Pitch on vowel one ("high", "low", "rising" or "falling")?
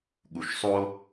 low